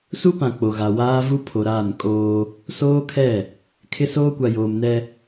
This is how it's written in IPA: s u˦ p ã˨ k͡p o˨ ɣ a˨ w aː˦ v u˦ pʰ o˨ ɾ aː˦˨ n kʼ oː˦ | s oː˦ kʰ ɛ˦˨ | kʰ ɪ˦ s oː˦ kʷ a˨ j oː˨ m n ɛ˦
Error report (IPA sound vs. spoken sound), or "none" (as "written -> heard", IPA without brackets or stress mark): none